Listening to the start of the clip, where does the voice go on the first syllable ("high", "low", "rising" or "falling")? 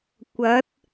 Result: rising